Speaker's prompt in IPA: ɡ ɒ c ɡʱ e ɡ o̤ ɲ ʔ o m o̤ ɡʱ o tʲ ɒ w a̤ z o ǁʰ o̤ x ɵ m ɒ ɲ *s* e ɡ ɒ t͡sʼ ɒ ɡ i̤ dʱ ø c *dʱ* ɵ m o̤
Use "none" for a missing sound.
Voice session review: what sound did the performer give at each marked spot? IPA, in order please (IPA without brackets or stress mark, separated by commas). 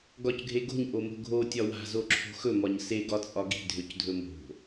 s, dʱ